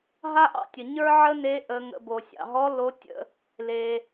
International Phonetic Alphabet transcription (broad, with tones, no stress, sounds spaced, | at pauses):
ɦ a˥ ʔ ɑ̰˧ tʲ ə˩ ɲ ə˞˥ ʕ ə˥ n e˧˥ ʔ ə˩˧ ŋ ə̰˩˧ b o˩ sʲ ɑ̰˩ ɦ ɔ˧˥ l o˧˥ tʲ ə̰˧ | l e˩